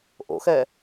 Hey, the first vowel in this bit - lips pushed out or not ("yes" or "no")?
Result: yes